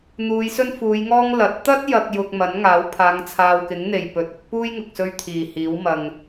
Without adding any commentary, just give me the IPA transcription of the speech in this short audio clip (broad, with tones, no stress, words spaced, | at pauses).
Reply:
n̪uː˨˧jsɵ˥n fuː˨˧jŋɔː˥ŋ lɐ˨˥t̚ t̪ɐ˥t̚jɐ˨k̚ jʊ˨k̚ mɐ˨˥nŋaː˨˥wpʰaː˨˧ŋ t͡sʰaː˨wkɪ˨˥ŋn̪e˨˩j pɵ˨t̚ ʊ˨˥k̚puː˥jŋʊ˨k̚sɵ˧ɥ t̪ʰiː˨˩hiː˨˥w mɐ˨ŋ